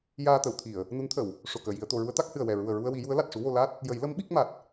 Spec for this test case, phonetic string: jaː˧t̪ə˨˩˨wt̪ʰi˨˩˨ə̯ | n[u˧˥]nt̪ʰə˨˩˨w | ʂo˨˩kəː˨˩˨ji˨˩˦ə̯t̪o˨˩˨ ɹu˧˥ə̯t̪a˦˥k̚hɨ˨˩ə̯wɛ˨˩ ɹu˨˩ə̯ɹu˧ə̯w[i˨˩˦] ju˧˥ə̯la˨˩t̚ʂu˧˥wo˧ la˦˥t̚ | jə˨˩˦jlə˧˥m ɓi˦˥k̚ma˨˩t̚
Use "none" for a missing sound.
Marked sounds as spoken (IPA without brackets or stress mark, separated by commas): u˧˥, i˨˩˦